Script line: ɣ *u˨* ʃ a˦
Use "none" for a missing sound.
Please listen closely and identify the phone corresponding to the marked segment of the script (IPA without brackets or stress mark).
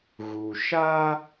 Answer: u˨